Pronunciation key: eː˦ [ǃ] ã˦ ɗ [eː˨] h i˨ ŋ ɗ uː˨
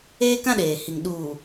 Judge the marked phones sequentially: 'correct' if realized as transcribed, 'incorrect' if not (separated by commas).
incorrect, correct